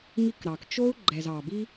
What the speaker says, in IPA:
ŋi˦kɾɑ˨k t͡ʃo˦u̯ ɡ͡ǃɛ˨zɑ˨bi˦

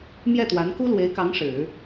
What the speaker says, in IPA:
mjɛ˥˩t̪wa˧˥n ku˥lwe˧˥ɪ̯kɑ˧˥ŋ ʂɻ̩˨˩˦

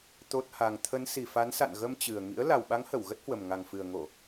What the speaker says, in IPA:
t̪o˦˥t̚ha˧ŋ t̪ʰə˨˦nsi˨˩fa˨˦nsa̰˧˨n ɣə˧mt͡ɕɨ˨˩ə̯ ŋḭ˧˥ə̯ la˨˩wɓa˨˦ŋhə˧˩w ɣə˦˥t̚hwə˨˩m ŋa˨˩ŋfɨ˨˩ə̯ŋo˧˩˨

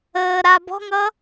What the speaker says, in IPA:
əː ɾabɔ̤ŋʌ

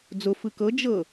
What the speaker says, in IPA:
d͡zʊ fɯkɤ d͡ʒɤ

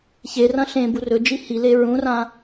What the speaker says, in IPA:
çerɐ̃ ɬẽ burɵd͡ʒi hile ɹũrã

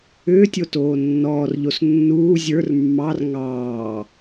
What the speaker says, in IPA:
ʏːtʲotoː nːɔːrʎos nːuː zʲə˞r mːɑr ŋɑː

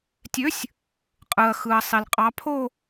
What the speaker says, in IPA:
tʲø˨˦sʲ | qʼɯ˩ɐ̯xɯ˩ɐ̯ sˤi˩lqʼɑ˨˦pʰo˥˧

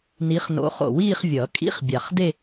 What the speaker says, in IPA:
ni˨˦χno̰˨˦χo̰˨˩wiː˥˧χ vʲʌ˨˩˦kʼḭ˧˥˧χ bʲa˨˩χde˥˧

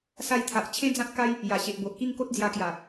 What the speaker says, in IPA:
sa˧jt̪ʰa˨ʔ t͡ɕʰẽ˦d͡zã˦t̚ka˦j | ja˨˩ɕe˨ʔbo˨ʔ ki˥˧ŋko˦t̚d͡zja˧kja˨˩

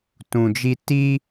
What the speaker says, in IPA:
tũ˧d͡ʒi˦ ti˦

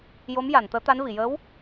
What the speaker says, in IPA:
jo˧˥mja˨˩˨nt̪əː˧˥t̪a˧˥n vi˨˩˨jəː˧˥w

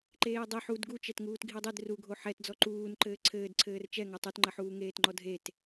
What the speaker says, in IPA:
ǃeːdˤi ħud ɡut͡ʃɛtŋuːt ɡʱidˤid ruɡʱo ħɛtd͡zɔ ǃuːn ǃɘːǀʰɘːd ǀʰɘːrt͡ʃɛŋɔ tˤutŋ͡ǃɐħuː ŋeːtŋ͡ǃɔdʱet

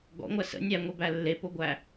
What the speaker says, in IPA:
ɡɔ̰ŋʷæ sə̰ nʲæŋʷebæ lːepoɡʷæ

